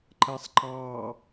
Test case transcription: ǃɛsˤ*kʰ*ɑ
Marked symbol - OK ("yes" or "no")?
no